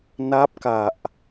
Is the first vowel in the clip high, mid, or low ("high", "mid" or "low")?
low